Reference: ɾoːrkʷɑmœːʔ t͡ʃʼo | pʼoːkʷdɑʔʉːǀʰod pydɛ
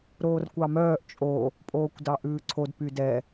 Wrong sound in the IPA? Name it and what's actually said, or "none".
none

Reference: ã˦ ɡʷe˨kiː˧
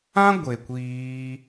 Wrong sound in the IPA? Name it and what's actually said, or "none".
k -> kʷ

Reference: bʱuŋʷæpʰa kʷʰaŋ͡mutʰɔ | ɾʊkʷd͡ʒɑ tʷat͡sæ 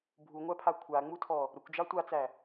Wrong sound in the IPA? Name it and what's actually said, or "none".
none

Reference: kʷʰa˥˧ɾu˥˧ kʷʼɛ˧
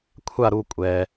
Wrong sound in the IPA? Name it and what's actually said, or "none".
none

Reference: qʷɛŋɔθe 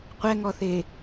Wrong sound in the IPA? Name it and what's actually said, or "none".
none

